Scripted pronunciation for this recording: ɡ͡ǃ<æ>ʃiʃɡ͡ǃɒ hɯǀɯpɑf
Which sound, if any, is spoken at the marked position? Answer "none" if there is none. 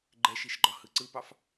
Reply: ɛ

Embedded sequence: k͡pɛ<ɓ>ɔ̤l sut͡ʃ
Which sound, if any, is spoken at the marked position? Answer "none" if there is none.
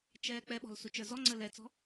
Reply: ɓ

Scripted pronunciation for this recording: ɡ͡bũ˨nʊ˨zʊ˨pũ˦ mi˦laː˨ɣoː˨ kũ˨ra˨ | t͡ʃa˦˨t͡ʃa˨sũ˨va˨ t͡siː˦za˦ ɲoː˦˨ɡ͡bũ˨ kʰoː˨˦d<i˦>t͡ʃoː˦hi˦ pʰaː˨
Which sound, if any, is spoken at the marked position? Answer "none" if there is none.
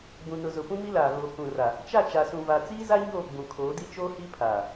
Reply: i˦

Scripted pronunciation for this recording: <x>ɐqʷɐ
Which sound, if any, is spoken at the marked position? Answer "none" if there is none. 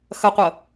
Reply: x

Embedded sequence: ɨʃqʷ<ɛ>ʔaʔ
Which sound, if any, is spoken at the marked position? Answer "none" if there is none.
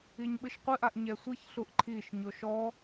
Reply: ɨ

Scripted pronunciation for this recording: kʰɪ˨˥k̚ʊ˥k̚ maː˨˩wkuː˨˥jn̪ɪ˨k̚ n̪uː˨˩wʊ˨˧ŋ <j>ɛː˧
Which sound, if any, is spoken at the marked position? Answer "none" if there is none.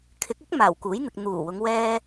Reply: w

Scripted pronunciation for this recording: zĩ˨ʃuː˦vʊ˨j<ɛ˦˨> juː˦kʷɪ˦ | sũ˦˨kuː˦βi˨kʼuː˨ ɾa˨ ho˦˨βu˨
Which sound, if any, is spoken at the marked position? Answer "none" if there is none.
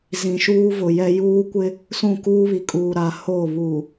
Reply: ɛ˦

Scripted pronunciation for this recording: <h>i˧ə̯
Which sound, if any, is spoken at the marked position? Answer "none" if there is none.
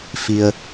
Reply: f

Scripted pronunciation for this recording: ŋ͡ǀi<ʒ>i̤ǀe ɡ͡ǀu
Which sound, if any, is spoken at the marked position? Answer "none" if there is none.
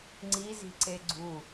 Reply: z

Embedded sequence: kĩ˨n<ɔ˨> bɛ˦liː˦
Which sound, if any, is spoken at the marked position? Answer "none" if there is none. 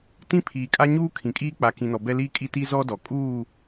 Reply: ɔ˨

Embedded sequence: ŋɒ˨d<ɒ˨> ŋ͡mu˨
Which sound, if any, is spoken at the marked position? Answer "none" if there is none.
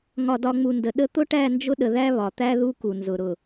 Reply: ɒ˨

